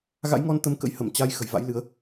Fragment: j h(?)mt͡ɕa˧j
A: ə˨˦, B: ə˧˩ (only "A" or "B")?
B